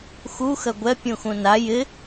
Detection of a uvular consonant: absent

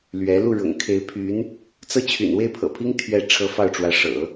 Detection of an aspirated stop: present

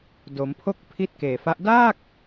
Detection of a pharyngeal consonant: absent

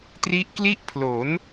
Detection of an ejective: absent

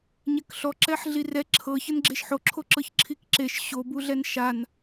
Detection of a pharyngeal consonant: present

